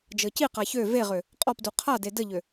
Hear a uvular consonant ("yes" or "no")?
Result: yes